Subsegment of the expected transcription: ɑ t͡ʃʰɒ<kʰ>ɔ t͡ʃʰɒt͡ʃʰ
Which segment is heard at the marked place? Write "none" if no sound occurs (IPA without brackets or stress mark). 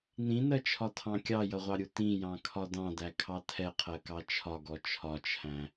ɡ